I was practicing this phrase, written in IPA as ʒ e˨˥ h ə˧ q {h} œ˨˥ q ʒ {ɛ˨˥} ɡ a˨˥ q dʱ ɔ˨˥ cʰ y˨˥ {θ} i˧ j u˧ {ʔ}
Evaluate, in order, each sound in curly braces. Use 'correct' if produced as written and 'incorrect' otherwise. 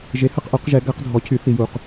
incorrect: ʔ, correct, correct, incorrect: q

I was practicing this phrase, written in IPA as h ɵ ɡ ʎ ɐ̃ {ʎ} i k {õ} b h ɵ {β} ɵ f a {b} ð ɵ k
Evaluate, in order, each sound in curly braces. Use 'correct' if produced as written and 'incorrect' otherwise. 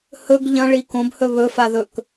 incorrect: ɭ, correct, correct, incorrect: none

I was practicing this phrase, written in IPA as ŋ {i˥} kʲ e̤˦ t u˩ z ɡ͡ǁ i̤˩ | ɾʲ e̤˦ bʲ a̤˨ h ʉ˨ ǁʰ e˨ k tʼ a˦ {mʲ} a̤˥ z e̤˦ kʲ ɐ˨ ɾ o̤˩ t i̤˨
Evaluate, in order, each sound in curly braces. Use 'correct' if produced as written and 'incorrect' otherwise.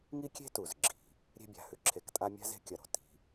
incorrect: i˦, correct

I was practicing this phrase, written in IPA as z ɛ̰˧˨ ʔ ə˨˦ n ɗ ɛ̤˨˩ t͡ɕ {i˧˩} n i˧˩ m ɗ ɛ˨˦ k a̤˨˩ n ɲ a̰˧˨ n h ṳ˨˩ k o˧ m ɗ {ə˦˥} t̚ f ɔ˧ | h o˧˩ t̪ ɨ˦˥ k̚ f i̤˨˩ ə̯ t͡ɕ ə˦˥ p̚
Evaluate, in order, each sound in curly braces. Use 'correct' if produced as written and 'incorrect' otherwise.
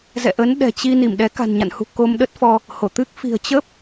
incorrect: i˧, correct

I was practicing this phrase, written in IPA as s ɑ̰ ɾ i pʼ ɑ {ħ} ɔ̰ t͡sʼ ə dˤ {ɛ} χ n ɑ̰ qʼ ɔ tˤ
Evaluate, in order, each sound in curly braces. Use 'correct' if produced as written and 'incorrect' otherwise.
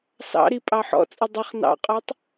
correct, incorrect: ə

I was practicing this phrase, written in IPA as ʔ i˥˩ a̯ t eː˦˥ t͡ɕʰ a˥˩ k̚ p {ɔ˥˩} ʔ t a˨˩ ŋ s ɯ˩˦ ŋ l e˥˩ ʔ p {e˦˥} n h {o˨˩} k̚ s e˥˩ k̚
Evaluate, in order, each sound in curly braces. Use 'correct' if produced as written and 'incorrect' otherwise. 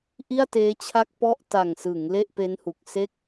correct, correct, incorrect: u˨˩

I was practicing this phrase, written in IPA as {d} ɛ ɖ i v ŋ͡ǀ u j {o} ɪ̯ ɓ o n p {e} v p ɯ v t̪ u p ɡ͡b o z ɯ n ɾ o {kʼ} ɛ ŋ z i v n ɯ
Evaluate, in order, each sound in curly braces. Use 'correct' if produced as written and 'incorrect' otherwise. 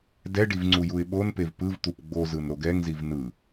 correct, incorrect: u, correct, incorrect: ɡ

